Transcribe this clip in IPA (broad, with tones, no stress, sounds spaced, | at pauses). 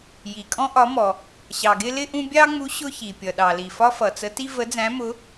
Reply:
j i˨ kʼ ɔ̃˥ ʔ ɒ˧˥ m ɔ˨ | ɕ ɑ˨ ɡ ɪ˥ l ɪ˥ ʔ ũ˥ bʲ ɑ˥ ŋ͡m u˧˥ ɕ ʊ˥ ç i˨ pʲ ʌ˨ ɗ ɑ˨ l i˨ f ɒ˥ f ʌ˨ t͡s ə˧˥ t i˥ v ə˧˥ d͡z æ̃˧˥ m ʊ˧˥